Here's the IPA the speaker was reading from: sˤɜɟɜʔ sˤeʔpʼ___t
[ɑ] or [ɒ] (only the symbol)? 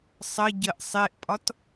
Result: ɒ